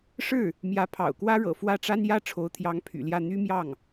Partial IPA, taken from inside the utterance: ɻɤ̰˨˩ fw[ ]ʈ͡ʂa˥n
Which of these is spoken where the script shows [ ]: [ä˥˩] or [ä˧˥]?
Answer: ä˥˩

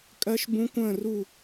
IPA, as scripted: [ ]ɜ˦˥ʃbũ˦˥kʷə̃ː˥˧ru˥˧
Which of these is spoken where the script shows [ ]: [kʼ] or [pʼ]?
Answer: kʼ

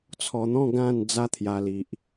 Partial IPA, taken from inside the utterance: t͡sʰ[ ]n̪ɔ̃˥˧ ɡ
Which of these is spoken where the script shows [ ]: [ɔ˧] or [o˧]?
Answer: ɔ˧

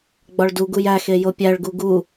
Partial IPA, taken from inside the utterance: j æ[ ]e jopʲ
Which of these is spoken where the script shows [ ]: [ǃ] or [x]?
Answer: x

